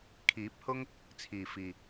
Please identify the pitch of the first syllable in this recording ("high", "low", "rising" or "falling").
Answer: rising